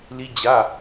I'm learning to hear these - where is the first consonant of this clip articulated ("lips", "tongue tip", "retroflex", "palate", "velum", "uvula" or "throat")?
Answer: tongue tip